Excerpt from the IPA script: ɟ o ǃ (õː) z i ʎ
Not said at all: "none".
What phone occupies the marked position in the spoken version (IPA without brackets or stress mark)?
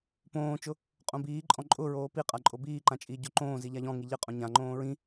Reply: õː